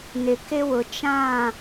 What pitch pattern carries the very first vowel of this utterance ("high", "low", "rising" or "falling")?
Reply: low